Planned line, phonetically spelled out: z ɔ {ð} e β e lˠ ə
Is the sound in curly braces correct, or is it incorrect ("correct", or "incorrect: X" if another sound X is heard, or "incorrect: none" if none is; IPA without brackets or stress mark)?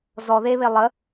correct